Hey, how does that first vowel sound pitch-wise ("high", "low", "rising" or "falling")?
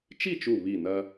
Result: falling